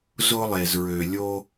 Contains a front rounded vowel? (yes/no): yes